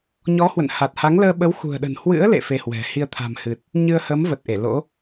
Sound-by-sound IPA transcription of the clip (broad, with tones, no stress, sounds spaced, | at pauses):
ɲ ɔ˨˦ h w ə̰˧˨ n h a˨˩ t̚ h a˨˦ ŋ l əː˧ ɓ ə˨˦ w x ṳ˨˩ ə̯ ɗ ə̤˨˩ n h w ɨ̰˧˥ ə̯ l ḛ˧˨ f e˧ h w ɛ̤˨˩ h i˧ ə̯ t̪ʰ a̤˨˩ m h ɨ˨˩ t̚ | ɲ ɨ˧ ə̯ h əː˨˦ m v ə˨˩ t̚ ʔ e˧˩ l o̰˧˥